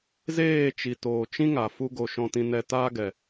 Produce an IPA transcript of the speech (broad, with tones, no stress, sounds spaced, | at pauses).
z eː˦˨ t͡ʃ i˨ t oː˨ t͡ʃ ĩ˦ ŋ a˨ f u˦ ɡ o˧ ʃ ɔ̃˦ t ĩ˦ n ɛ˦ t aː˦ ɡ ɛ˨